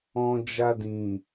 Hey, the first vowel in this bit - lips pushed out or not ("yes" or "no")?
yes